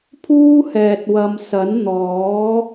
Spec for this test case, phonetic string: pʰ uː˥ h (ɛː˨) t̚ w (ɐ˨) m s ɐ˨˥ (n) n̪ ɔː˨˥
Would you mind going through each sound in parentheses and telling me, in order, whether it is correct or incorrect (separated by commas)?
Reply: correct, correct, correct